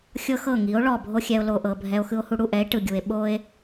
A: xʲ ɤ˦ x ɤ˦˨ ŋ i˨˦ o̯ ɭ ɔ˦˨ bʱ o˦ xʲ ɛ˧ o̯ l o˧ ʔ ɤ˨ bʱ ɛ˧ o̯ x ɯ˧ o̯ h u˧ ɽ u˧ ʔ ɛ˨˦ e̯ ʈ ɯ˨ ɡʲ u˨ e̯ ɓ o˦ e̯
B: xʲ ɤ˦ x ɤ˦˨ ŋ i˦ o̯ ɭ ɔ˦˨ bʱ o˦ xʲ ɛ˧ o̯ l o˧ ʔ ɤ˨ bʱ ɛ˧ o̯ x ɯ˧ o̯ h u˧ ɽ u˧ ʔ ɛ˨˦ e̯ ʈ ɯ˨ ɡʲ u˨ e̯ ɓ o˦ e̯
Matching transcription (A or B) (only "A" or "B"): A